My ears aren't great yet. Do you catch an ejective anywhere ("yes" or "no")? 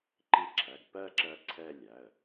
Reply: no